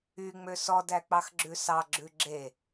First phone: y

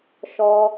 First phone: ʃ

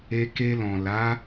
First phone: e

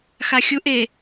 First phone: x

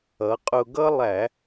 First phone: ʌ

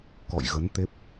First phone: k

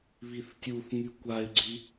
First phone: β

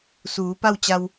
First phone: s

